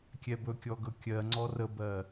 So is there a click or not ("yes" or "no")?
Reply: yes